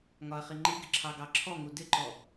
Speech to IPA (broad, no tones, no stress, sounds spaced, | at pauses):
ŋ ɒ ɐ̯ χ i ŋ͡ǃ i ɡ ɪ ǁʰ ɑ ɡ ɑ ǁʰ ɔ ŋ u d ɪ ǃ ɔ